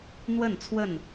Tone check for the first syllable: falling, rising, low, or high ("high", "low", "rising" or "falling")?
falling